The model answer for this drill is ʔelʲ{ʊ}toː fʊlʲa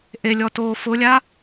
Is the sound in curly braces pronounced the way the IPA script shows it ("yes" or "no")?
no